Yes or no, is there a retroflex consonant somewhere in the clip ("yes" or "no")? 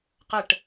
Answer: yes